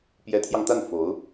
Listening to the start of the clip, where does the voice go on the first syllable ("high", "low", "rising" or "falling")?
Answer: rising